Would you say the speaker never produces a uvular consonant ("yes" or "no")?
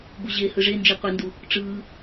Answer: no